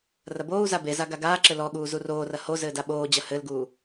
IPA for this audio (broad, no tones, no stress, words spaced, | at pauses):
rɐboːu̯za beza ɡaɡaːǁɘ lɔɠuː zuroːrɐ ho zɘːdaɓoːd͡ʑɐ hɘlɡuː